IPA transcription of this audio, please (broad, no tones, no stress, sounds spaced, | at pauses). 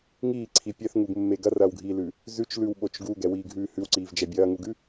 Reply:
ŋ iː ǀʰ i pʲ ɛ θ ŋ u ɡ mː e ɡ ɐ r ɐː w ɡʱ iː l ʉ | z ʉ t͡ʃ l ʉ w ɓ o t͡ʃ ɡ u ɡ ɛ w iː ɡʱ ʉː h ʉ w ǀ iː v d͡ʒ ɛ bʲ ɐː ŋ u ɡ ʉ